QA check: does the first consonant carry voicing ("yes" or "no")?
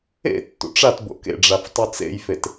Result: no